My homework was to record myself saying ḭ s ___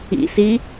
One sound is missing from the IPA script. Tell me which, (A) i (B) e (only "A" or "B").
A